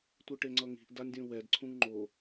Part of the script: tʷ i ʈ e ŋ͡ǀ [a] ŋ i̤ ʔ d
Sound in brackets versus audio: incorrect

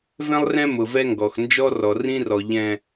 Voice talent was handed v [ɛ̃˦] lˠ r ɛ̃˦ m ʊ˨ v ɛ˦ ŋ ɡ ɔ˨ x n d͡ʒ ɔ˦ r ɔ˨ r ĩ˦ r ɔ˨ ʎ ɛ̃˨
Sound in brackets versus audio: correct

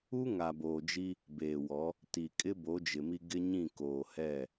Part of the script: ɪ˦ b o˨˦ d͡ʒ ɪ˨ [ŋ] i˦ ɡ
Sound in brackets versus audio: incorrect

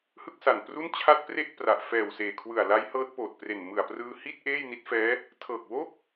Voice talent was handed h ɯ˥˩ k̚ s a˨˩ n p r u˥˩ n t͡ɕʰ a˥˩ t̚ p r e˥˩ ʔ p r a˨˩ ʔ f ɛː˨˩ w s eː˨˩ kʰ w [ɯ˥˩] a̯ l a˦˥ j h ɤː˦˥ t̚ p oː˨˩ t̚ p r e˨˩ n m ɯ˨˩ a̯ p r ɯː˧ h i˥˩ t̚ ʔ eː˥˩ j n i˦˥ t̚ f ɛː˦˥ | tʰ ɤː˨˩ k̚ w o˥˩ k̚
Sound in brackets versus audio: incorrect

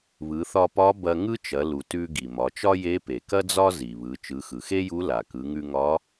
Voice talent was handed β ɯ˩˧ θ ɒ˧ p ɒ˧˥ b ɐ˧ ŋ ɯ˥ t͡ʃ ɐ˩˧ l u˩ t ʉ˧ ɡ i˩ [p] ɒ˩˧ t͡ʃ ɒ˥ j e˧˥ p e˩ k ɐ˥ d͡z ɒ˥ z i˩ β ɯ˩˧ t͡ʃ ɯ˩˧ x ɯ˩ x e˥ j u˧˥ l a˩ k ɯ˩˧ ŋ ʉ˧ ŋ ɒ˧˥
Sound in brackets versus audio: incorrect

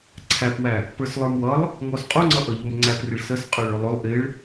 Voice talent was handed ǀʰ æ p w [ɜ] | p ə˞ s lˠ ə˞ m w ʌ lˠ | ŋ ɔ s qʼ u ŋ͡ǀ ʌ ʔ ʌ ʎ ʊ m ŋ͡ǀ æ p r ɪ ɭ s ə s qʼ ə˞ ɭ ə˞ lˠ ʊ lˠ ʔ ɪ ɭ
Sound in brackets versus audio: incorrect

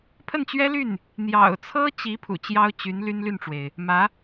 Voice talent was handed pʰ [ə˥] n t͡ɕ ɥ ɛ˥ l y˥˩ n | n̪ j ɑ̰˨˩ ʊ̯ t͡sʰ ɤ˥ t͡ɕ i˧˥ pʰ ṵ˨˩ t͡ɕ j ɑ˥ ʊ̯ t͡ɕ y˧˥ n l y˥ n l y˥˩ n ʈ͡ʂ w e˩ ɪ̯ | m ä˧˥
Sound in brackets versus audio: incorrect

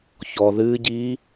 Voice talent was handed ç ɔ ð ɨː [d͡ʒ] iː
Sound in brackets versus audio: incorrect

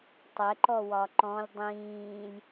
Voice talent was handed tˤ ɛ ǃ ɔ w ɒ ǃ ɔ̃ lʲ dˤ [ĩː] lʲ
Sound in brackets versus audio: correct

